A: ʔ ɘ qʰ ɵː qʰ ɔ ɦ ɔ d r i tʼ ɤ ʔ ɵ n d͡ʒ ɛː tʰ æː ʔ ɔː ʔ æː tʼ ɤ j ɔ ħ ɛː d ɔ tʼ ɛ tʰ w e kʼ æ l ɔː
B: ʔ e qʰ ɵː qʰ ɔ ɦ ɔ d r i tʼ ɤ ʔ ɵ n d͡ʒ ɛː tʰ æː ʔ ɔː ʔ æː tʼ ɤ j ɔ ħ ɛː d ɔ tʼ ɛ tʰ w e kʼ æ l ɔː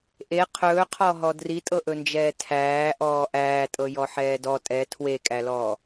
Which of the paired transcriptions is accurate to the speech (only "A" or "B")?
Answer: B